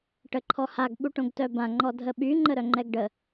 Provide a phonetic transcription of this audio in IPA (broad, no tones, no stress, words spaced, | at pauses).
ʈəǃʰɔhaɡ ɓuʈõɡtœbã ŋ͡ǃɔdʱəɓy ŋ͡ǃəɾœŋ͡ǃɛɡɖə